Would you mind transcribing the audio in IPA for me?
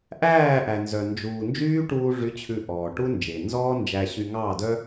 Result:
ʔ æː˦˨ ʔ æ˨ n z œ˨ n d͡ʒ uː˨ n d͡ʒ yː˦ ʈ uː˧ ʐ y˨˦ t͡ɕʰ ʉ˧ ʔ ɔː˨ ʈ u˦ n d͡ʒ e˨ n z ɔː˦ n d͡ʒ æ˧ ɕ y˧ ŋ ɑ˦˨ d œ˦

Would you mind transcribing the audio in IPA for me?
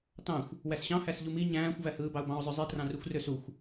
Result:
t ɑ̃ xʷ | w æ s ɕ ɑ̃ h æ s ʎ u m i ɲ æ̃ː xʷ v æ h ɯː b ɑ ʊ̯ b ɑ̃ ʊ̯ zˤ ø zˤ i t r ɑ̃ r u xʷ r ø s u xʷ

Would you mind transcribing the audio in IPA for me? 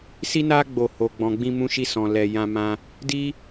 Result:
s i˦ n a˦ ɡ͡b o˦˨ h o˧ ɡ͡b ɔ̃˧ ɡ͡b ĩ˦ m ũ˦ ʃ i˦ s ɔ̃˧ l ɛ˧ j ã˦ m ã˦ | d i˦

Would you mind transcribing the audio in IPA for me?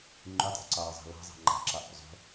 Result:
ŋ͡ǃ y tˤ o̰ ǀ ɑː zˤ ɑ̤ l ɑ̤ zˤ ɑ̤ ŋ͡ǃ ɑ̤ ǁ ɑ ʔ o̰ zˤ o̤

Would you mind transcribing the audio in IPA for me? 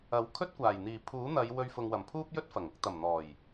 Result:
ɐ˨˥ w kʰ ɵ˥ t̚ kʷ aː˨˩ j n̪ iː˨˩ pʰ uː˨˥ n̪ ɐ˨˧ j w ɵ˧ ɥ f ʊ˨ ŋ w ɐ˨˩ m pʰ uː˥ p̚ j ɵ˥ t̚ f ɐ˨˩ ŋ ʊ˨˥ k̚ t̪ ɐ˨˩ m n̪ ɔː˨˩ j

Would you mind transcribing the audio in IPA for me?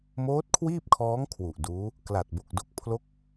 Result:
m oː˦˥ t̚ kʰ w iː˥˩ p̚ kʰ ɔː˦˥ ŋ kʰ w u˨˩ ʔ d uː˦˥ | k l a˨˩ t̚ b o˨˩ k̚ d o˥˩ k̚ pʰ l o˥˩ k̚

